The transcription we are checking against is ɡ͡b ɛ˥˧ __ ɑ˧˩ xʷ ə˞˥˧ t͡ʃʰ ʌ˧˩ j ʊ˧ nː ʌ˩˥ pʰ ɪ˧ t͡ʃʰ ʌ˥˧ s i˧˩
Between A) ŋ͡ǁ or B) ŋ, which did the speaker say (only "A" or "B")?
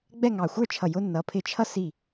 B